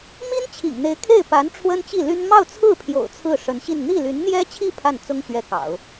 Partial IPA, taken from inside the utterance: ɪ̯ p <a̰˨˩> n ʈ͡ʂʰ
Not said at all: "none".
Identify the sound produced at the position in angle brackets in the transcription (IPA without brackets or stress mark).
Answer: a˧˥